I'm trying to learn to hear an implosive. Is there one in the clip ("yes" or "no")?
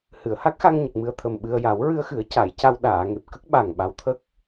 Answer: yes